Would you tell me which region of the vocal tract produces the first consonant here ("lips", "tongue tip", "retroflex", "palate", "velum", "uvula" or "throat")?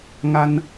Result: velum